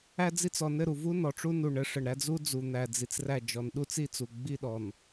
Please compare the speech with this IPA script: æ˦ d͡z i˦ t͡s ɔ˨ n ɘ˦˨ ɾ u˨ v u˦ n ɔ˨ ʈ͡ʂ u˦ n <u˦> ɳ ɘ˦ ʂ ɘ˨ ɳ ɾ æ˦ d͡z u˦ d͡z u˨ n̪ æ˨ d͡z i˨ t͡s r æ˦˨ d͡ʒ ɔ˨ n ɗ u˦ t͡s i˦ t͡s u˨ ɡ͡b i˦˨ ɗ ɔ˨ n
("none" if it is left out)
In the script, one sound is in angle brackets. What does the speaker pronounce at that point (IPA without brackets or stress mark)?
u˨